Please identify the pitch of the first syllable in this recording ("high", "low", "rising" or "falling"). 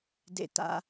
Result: low